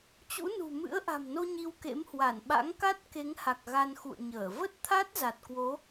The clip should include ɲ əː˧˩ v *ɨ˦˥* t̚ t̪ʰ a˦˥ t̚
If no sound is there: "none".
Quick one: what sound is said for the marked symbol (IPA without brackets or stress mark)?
ə˦˥